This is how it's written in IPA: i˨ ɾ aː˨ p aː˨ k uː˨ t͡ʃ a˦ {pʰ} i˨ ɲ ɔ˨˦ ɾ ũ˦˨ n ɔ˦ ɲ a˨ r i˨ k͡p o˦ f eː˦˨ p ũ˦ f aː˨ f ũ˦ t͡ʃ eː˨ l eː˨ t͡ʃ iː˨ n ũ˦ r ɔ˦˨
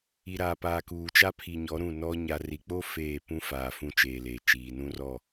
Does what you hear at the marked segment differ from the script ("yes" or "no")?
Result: no